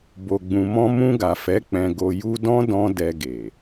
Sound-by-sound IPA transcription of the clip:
b o˨ ɡ͡b ũ˨ m ɔ̃˧ m ũ˧ ɡ a˨ f ɛ˨˦ k͡p ɛ̃˧ ɡ o˧ j u˧ d ɔ̃˦ d ɔ̃˧ d ɛ˧ ɡ e˨

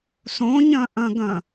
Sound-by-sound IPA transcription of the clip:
s õ ɲ ɐ̃ ʔ ɐ̃ ɡ ɐ̃

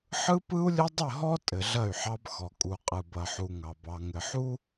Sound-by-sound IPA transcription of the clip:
ħ ɯ˦ p ɯ˦ u̯ lʲ ɘ˦ dˤ ɘ˦˨ ɦ ɔ˦ tʼ ɘ˨ ɮ ɐ˦˨ y̯ ħ ɑ˦ b x ɔ˨ kʼ u˨ qʼ ɯ˨ b ɐ˨ ħ u˨ ŋ ɑ˨ b ɑ˨ ŋ ɘ˨ ħ u˦

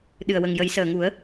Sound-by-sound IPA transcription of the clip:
ɗ ɨ˨˩ ə̯ w ə˨˩ ŋ j ə˨˩˦ j s əː˨˩ ŋ u˨˩˦ ə̯

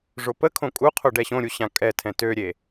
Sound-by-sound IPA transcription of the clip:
ʐ o p ə kʰ õ kʼ u qʰ o ɖ ɛ ɕ õ ɾʲ u ɕ ã kʼ ɛ tʰ ɛ̃ t ø ɾʲ e

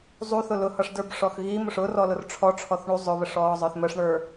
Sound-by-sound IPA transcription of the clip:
zˤ u θ ʊ l ʊ h ʌ ʂ d ə˞ b ʂ ɔ x ɣ i m ʊ ʂ ʊ r ɔ l ʊ r ʈ͡ʂʰ ɔ ʈ͡ʂʰ ɔ θ ɳ u zˤ ʊ β ə ʂ ɔː zˤ ə˞ θ m ə ʂ ɳ ə˞

